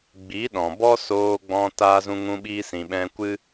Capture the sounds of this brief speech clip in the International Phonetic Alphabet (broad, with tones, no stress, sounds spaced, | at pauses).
ɡ͡b i˨˦ ɗ ɔ̃˨ b ɔ˦ s oː˧ ɡ͡b ɔ̃˧ t aː˧ z ũ˧ ŋ ũ˧ ɓ iː˧ s ĩ˨ ɓ ɛ̃˧ kʷ ɨ˦